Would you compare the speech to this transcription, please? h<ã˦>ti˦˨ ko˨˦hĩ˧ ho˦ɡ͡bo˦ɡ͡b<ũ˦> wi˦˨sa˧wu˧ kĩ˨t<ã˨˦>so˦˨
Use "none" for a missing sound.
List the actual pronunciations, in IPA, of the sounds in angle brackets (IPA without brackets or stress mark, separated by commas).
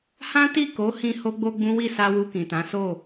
ã˦, ũ˦, ã˨˦